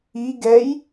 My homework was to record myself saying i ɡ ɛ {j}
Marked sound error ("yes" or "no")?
no